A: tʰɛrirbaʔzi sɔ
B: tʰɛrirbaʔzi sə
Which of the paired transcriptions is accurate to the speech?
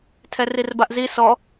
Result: A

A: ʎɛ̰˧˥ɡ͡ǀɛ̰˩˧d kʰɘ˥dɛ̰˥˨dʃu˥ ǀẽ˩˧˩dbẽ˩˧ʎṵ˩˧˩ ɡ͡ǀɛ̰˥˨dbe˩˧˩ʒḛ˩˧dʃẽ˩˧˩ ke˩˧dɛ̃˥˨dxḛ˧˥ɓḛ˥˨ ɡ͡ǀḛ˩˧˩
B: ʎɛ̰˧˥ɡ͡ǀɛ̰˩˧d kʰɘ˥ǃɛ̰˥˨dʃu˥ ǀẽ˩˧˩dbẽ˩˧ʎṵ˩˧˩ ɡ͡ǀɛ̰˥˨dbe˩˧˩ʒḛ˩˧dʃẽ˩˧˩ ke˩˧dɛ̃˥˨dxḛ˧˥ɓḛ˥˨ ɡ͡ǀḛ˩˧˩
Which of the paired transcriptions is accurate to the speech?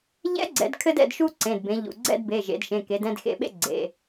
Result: A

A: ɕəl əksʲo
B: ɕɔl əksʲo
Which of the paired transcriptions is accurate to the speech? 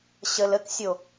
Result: A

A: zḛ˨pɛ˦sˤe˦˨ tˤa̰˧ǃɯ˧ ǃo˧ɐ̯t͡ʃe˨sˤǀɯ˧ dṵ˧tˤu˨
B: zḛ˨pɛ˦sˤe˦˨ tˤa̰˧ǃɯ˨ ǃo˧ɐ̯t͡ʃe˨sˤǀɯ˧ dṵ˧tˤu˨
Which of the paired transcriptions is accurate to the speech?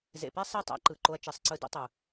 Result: B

